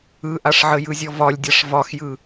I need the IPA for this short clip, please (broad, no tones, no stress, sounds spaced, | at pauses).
ɯ ʔ a ʂ ʕ ə j ɯ zʲ ɔ v ɒ lʲ dʲ a ʂ v ɒ x j ɯ